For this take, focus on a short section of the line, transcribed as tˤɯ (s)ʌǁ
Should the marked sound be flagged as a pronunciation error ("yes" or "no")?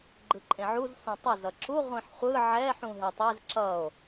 yes